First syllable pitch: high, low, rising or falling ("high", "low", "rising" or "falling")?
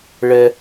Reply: low